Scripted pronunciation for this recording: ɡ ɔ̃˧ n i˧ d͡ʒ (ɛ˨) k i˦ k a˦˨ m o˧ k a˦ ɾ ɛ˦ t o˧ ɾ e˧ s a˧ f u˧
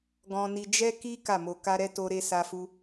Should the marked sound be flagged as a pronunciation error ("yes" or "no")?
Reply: yes